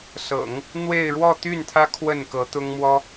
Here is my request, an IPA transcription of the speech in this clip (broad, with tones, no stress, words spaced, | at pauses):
sɤ̰˨˩˦ŋ | n̪we˥˧ɪ̯ ɻwɔ˥˧t̪y˥˩nt̪ʰä˥ kʰwə˥˩nkɤ˧˥t̪ʊ˥ŋmwɔ˥